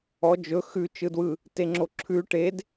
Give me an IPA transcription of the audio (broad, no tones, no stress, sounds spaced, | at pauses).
ɔ d͡ʒ ɵ x ʉ t͡ʃ ɯ d w ɯ | t e ŋ͡ǁ o ǁʰ ʉ ʈ e d